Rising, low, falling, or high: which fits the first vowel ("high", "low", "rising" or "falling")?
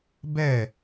falling